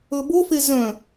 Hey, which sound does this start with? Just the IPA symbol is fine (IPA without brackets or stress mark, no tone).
ɵ